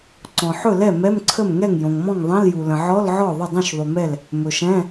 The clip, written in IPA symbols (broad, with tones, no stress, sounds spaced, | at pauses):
ǀ ɔ̃˩ ħ ɵ˥˩ l ɛ˥˩ m ɛ˧˥˧ m ǀʰ ə˥˩ m ŋ ɛ˥˩ ŋ j õ˩ ŋ m ɔ̃˥˩ ŋ ðˤ ɛ̃˧˥˧ l j u˩ l ə̃˩ ʕ ɔ˧˥˧ l ʕ ɔ˥˩ ðˤ ə˥˩ dˤ ũ˥˩ ʃ ðˤ u˩ m ɛ˥˩ l | m ɵ˩ ʃ ɛ̃˧˥˧